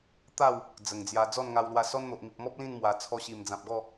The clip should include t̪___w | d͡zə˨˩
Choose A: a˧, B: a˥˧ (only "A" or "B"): B